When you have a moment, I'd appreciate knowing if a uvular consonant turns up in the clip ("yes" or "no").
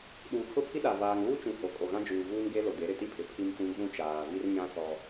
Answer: no